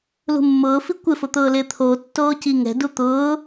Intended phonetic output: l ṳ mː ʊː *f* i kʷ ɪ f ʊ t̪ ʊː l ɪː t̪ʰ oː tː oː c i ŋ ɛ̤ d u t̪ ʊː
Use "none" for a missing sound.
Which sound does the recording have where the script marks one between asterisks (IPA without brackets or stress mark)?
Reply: f